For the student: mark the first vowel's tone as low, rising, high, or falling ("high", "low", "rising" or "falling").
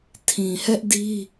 low